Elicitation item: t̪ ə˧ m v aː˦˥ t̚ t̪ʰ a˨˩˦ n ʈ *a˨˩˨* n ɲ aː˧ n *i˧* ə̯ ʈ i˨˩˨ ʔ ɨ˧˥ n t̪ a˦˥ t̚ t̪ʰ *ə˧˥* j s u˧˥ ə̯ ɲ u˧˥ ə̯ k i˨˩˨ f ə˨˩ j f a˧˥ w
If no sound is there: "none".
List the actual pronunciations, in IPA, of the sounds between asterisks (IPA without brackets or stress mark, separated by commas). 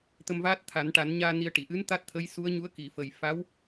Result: a˨˩˦, i˧, ə˧˥